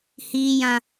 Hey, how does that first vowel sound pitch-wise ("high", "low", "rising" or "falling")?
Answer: high